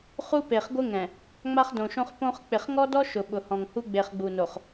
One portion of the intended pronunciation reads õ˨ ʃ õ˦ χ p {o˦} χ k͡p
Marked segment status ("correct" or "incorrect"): incorrect